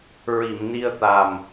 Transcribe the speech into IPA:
ɹi˨˩˨mni˧ə̯t̪a˨˩m

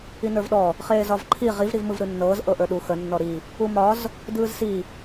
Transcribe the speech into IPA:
inə˞vɗɔ | χeːzɒvǃʰi ʁiv ɾivmɯvɾɯnːɤːz ʔɤʔə˞ɗu xə nːɔɾi | umɒz | dɯːzsi

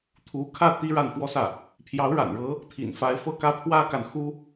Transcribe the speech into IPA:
t̪ʰu˧˥kʰä˥˩ t̪i˥ ɻa˥˩nfwɔ˥sä˥˩ | pʰjɑ˧˥ʊ̯ɻa̰˨˩nɻɤ˧˥ | t̪ʰḭ˨˩nfa˧˥ɪ̯fɤ˥˩kä˥ pʰwä˥ka˨nxu˥

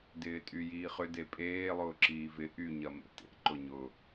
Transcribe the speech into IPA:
dɪːtʼyjiːχʏ depʼeː lˠʊːǁiːvɪ ʔy ɲɐmḛtḛ ǃʊɲʊ

